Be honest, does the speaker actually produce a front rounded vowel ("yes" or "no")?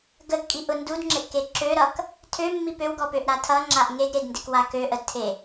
yes